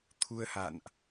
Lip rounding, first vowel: rounded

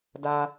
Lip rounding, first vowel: unrounded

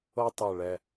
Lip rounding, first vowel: unrounded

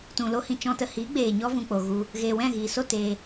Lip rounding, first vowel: rounded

